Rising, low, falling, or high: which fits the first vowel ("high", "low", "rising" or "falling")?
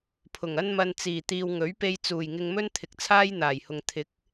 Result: low